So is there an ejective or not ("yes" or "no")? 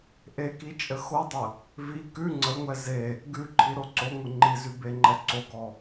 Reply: yes